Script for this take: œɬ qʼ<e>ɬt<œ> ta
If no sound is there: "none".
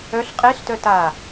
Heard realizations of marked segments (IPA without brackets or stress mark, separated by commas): e, œ